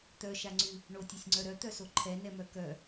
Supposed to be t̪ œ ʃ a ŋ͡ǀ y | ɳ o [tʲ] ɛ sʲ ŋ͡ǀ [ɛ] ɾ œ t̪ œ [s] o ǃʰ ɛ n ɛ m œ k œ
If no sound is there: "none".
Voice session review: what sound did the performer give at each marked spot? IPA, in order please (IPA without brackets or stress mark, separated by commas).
tʲ, œ, s